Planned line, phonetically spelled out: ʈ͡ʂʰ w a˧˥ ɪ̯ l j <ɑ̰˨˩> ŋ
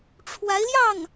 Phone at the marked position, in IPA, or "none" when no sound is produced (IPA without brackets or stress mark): ɑ˥˩